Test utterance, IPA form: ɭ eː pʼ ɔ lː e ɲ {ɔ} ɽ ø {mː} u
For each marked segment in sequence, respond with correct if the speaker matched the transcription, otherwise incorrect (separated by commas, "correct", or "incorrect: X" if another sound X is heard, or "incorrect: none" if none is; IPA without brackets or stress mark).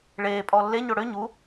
incorrect: o, incorrect: ɲ